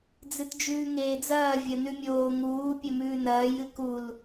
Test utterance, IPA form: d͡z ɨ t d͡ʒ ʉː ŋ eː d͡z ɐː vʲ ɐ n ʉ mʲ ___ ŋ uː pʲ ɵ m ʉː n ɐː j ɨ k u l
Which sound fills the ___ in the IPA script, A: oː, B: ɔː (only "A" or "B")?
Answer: A